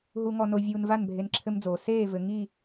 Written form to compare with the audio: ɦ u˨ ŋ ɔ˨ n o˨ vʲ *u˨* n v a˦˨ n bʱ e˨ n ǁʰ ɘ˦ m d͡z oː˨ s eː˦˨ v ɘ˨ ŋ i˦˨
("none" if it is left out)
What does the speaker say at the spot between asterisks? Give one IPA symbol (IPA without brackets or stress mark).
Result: uː˨